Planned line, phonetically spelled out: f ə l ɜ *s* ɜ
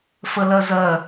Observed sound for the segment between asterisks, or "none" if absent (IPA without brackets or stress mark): z